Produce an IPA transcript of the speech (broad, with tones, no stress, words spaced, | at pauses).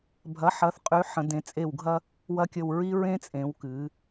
bʱɐ˨˥ħɐ˨˥θqʼy˨˥ ħə̃˩˧dẽ˩˧t͡sʼe˧˩wɡʱɐ˧ | wɐ˧kʲə˧˩w ɹi˧ ɹẽ˧t͡sʼẽ˩˧w kɨ˩˧